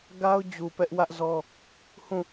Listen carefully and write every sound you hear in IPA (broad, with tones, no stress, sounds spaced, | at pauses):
ɡ a˦ ʊ̯ d͡ʑ u˨ p ɛ˦ ʔ w ä˦ ʔ z ɔ˦ | h ũ˦˨